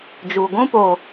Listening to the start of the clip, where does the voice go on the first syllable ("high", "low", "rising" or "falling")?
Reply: low